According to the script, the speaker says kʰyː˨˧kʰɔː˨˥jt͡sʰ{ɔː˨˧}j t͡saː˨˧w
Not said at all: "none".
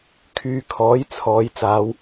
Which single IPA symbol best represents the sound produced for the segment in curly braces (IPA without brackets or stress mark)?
ɔː˨˧